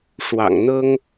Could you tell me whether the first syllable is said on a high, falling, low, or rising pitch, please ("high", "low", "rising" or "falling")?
low